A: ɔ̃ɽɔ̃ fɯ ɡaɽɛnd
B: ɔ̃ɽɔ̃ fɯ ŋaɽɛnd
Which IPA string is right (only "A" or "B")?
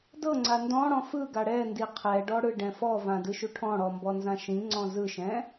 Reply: A